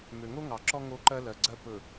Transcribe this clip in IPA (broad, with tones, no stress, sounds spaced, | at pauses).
m ø˨ ŋ o˦ ŋ ɑ˨ ǁ ɔ˦ ŋ o˦ ǃ ɜ˦ l ɜ˨ ɡ͡ǀ ɜ˦ p ɵ˨